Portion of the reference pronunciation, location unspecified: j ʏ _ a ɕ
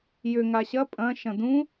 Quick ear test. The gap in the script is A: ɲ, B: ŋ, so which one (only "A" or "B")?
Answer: B